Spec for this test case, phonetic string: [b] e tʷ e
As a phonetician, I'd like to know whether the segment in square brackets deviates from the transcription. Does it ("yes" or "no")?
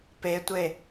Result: yes